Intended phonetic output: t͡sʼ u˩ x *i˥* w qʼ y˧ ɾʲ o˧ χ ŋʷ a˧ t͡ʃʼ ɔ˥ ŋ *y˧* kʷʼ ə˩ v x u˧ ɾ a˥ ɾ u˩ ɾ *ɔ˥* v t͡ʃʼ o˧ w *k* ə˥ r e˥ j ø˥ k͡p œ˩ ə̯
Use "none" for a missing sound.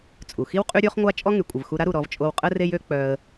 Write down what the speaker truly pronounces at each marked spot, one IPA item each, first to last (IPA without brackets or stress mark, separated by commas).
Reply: i˥, y˩, ɔ˧, qʼ